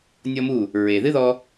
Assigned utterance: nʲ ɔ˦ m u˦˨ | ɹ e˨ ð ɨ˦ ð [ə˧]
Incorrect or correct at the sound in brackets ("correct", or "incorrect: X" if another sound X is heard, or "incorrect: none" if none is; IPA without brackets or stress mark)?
incorrect: ɔ˧